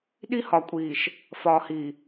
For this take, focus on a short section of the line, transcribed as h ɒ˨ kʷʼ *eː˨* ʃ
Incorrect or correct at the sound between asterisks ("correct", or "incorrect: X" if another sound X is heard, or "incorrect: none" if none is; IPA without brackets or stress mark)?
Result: incorrect: iː˨